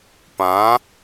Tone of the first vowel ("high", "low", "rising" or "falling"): rising